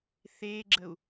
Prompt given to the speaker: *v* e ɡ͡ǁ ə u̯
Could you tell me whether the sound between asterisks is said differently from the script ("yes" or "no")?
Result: yes